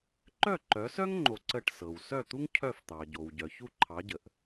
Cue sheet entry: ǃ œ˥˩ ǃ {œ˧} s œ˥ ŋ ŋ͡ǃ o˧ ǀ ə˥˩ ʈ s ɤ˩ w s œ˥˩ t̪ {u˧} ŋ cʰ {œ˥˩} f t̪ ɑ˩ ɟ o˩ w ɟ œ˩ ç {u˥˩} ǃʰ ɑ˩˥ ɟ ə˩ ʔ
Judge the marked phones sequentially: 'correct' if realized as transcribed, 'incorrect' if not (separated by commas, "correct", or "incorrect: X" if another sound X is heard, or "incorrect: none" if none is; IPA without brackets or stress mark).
incorrect: œ˩˥, incorrect: u˥, correct, correct